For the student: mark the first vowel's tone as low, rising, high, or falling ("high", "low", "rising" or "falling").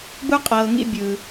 high